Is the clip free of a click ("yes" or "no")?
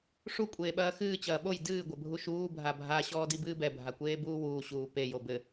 yes